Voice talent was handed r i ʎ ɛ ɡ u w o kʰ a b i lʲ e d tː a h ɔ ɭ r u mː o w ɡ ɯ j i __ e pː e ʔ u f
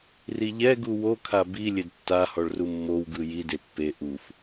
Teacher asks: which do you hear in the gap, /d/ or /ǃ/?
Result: d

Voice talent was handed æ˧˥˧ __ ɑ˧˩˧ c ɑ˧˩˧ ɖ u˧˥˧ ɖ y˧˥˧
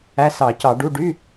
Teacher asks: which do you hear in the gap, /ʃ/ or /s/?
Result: s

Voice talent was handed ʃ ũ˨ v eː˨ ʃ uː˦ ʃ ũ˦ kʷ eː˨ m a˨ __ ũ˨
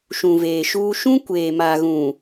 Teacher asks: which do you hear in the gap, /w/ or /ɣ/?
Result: ɣ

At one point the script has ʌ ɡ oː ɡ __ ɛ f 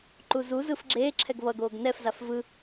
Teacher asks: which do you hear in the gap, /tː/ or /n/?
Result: n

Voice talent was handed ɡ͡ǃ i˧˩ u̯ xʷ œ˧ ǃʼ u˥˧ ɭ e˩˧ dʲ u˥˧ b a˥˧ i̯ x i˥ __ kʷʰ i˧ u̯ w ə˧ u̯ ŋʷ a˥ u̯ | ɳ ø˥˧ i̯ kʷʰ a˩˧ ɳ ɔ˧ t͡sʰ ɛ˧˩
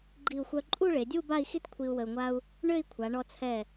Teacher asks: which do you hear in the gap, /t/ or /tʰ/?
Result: t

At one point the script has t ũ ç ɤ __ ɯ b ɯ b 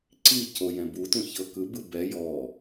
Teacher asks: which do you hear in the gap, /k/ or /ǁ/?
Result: k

